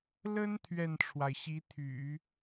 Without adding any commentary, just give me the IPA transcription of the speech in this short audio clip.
l ə˥ n t̪ʰ ɥ ɛ˥˩ n ʈ͡ʂʰ w a˩ ɪ̯ ɕ i˧˥ t̪ʰ y̰˨˩˦

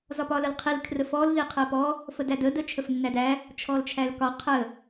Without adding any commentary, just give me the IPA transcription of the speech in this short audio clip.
z ɒ p ɒ l ə l qʰ i l kʰ r ə f ɔ l ð i qʰ ɜ p ɔ | f ə d æ d ə d ə t͡ʃʰ ə f nː æ d æ | t͡ʃʰ ɔ l t͡ʃʰ æ l k ɒ qʰ ə

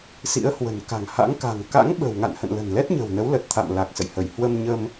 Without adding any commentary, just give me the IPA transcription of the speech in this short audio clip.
s ḭ˧˥ ə̯ h w ə̤˨˩ n k a̤˨˩ ŋ h a̰˧˥ ŋ k a̤˨˩ ŋ k a̰˧˥ ŋ ɓ ə̤˨˩ w ŋ a̰˧˨ n h ə̰˧˨ n l ə̤˨˩ n l ɛ˦˥ t̚ ɲ ə̤˨˩ w n ə˨˦ w l ə˨˩ t̚ t̪ʰ a̰˧˨ m l a˨˩ k̚ s ə̰˧˨ j h ə˧˩ j h w ə˧ m ɲ ə˧ m

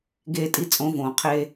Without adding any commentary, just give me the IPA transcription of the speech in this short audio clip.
ɡ eː˧ tʼ i˧ t͡sʼ õ˨˦ v õː˨ qʰ eː˦

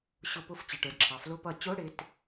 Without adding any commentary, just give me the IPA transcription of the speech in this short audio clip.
ɕ ʊ˧˩˧ p ʊ˧˥˧ f t͡ɕ ɪ˩ ʈ ə˞˩˧ d ǁʰ ɑ˩ f l ʊ˧˥˧ p ʌ˧˩˧ t͡ɕ ʊ˧˥˧ ɽ ɪ˧˥˧ t

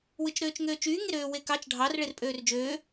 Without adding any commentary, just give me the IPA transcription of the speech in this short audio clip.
w ɯ t͡ʃ ɾ øː t͡ʃ ŋ øː t͡ʃ yː ŋ e ɾ øː w e k ɑ t͡ʃ ɖʱ ɑ r ɭ e r pʼ øː r d͡ʒ øː

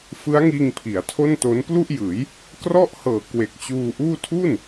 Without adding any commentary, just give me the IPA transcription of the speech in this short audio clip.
f ɯ˦˥ a̯ ŋ iː˧ ŋ pʰ i˩˦ a̯ tʰ o˥˩ n t o˦˥ n p l u˥˩ ʔ j ɯː˩˦ j | k r ɔ˥˩ ʔ h ɤː˨˩ k w e˨˩ k̚ t͡ɕ uː˧ ʔ uː˥˩ tʰ u˥˩ n

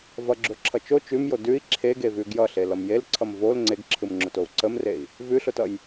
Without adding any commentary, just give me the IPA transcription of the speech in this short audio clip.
v ʌ ɡ͡ǁ o ǁʰ ʌ t͡ʃ o t͡ʃ ʉ m j o d ʉ i̯ ǁʰ e ɡ e v ʉ ɡ j ʌ ɬ e l ʌ m j e l ǀʰ ʌ m v o l ŋ͡ǀ e ɡ ǁʰ ɯ m ŋ͡ǁ ʊ t o u̯ ǀ ə m r e i̯ | v ʉ ɬ ʊ t ʌ j

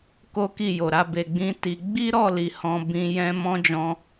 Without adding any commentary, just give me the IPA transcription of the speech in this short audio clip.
k o˦ k i˦˨ j o˨ ɾ a˨˦ b e˧ ɡ͡b ĩ˦ t i˧ ɡ͡b i˦ ɾ ɔ˦˨ l i˨ h ɔ̃˧ b ĩ˧ j ɛ̃˦ m ɔ̃˦ d͡ʒ ɔ̃˧

